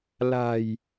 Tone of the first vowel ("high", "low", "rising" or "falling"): low